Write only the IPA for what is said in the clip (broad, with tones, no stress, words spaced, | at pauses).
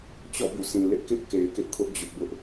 t͡ɕɔ̰˦˨bṵ˦˨sʰĩ˨lɪ˦ʔ kɪ˦ʔ ke˨ɪ̯kɪ˦ʔkʰʊ˦ʔ d͡ʑʊ˦ʔbʊ˦ʔ